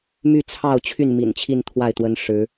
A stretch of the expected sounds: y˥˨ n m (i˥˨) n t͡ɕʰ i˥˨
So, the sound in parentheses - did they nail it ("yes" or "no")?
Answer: no